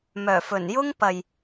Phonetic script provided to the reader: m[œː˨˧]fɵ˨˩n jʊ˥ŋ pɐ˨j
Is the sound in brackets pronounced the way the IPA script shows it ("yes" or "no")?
no